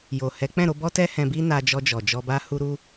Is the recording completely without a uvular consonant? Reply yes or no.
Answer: yes